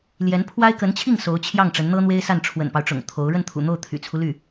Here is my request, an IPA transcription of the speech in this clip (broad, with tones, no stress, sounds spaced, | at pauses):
l j ɛ˧˥ n pʰ w a˥ ɪ̯ k ə˧˥ n t͡ɕʰ i˥˩ ŋ s o˧˥ ʊ̯ t͡ɕʰ j ɑ˥˩ ŋ ʈ͡ʂ ə˧˥ n n̪ ɤ˥ n̪ w e˥ ɪ̯ s a˥˩ n ʈ͡ʂʰ w ə̰˨˩ n p ɑ˦ ʊ̯ ʈ͡ʂ ʊ̰˨˩ ŋ t̪ʰ o˧˥ ʊ̯ ɻ ə˥˩ n t̪ʰ ṵ˨˩ n̪ o˥˩ ʊ̯ t̪ʰ y̰˨˩ t͡sʰ u˦ l y˥˩